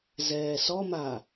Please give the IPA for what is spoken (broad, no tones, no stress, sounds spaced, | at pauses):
z ɛː s ɔ m a